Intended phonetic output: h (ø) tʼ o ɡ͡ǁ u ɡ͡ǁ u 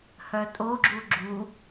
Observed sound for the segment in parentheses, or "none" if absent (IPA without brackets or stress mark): œ